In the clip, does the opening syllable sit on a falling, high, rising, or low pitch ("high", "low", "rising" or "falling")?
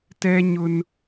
high